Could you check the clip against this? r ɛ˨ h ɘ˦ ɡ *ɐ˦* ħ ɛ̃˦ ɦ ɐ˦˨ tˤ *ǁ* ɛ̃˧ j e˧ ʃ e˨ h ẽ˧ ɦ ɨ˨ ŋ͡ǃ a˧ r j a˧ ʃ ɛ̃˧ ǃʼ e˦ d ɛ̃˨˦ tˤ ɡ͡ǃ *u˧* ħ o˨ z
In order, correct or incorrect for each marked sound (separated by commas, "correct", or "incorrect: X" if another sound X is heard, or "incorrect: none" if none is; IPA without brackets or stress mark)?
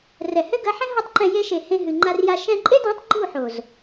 incorrect: ɐ˨˦, incorrect: ǃ, incorrect: u˦˨